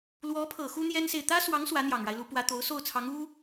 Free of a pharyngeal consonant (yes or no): yes